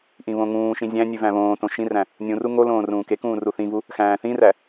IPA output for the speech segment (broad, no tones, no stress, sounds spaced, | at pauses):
ʔ ĩ β õ ŋ ũː ʃ ĩ zʲ æ̃ nʲ ʉ v æ̃ β õː t õ ʃ ĩ r æ̃ | nʲ ũ r u ŋ o l õː r ũː k e k ũː r u θ ĩ v u | x æ̃ː θ ĩ r æ